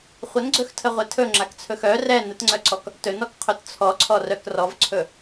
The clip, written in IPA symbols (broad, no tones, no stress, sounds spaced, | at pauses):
χʷ ə n ɡ͡ǀ ɵ x tʰ ə ʁʷ ɛ tʰ ɵ ŋ͡ǁ a k t͡sʰ ɵ x œ r ɛ n ə t ŋ͡ǀ œ ǀ ɔ k | t ɵ n ɔ k qʰ ɵ t t͡sʰ ɔ ǀʰ ɔ r œ k r ɔ v ǀʰ ɵ